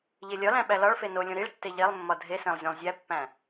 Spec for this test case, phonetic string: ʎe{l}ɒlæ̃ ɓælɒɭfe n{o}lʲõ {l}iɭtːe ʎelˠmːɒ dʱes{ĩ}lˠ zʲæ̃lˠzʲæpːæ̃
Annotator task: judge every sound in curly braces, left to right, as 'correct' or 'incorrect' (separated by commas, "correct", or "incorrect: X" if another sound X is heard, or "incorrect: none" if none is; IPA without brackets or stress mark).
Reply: incorrect: lʲ, correct, incorrect: ɾ, incorrect: ẽ